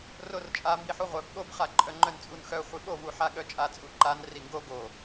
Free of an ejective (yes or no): no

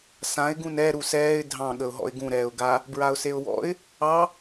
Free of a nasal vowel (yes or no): no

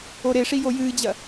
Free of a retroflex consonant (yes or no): no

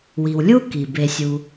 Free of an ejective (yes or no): yes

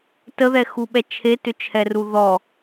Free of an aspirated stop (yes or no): no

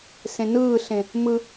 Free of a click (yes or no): yes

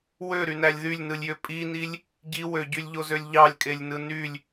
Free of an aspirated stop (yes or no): yes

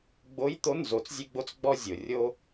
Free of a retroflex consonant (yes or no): yes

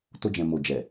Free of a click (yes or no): yes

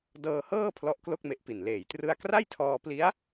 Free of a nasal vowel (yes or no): yes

